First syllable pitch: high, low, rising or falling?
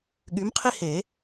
rising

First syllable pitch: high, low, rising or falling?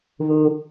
low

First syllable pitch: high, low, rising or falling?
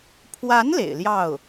rising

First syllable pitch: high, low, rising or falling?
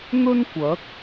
high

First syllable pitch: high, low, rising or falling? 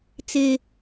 high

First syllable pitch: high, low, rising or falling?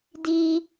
high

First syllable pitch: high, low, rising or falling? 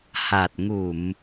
low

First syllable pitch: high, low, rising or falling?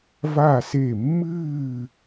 falling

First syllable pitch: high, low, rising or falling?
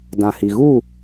low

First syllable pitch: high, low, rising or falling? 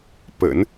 low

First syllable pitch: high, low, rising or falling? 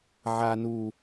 low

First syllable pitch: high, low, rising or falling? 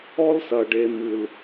high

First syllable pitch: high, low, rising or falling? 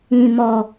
low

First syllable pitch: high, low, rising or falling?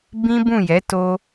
high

